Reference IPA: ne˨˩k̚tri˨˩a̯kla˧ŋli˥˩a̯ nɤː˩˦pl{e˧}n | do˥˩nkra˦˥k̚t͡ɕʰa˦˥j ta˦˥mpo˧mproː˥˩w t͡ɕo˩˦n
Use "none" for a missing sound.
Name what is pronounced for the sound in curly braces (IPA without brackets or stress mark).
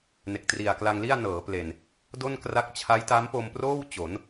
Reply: e˨˩